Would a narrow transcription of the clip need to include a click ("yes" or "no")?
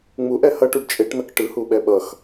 no